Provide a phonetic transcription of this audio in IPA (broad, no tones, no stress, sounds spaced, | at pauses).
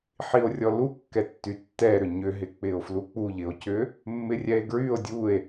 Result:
ħ i o̯ rʲ ɔ l u kː ɛ tː y tː ɛ ɾ ʏ ɲ ʏ ɦ ɪ k͡p ɪ o̯ f l u k͡p u ʎ ɪ o̯ c ʏ | mː ɪ rʲ ɛ e̯ ɡ ɹ y o̯ dʲ u e̯